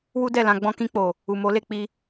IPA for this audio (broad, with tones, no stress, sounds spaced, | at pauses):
w u˦ d ɛ˦˨ l ã˧ ɡ͡b ɔ̃˧ k ĩ˧ k͡p o˨ | u˨ m o˨˦ l e˦˨ k͡p i˧